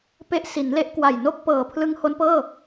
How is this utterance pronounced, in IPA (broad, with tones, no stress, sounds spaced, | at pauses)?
p e˦˥ ʔ s i˩˦ n l e˦˥ ʔ k w a˨˩ j n o˥˩ k̚ p ɤː˨˩ pʰ l ɯ˦˥ ŋ h o˦˥ n p ɤː˥˩